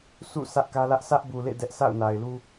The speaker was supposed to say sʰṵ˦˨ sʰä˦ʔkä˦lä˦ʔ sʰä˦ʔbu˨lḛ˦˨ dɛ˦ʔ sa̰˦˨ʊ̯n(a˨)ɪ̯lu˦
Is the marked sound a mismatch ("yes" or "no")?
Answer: no